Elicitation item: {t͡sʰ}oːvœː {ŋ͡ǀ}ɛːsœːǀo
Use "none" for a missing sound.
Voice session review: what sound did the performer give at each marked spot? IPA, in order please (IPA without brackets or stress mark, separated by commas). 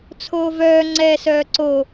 t͡sʰ, ŋ͡ǀ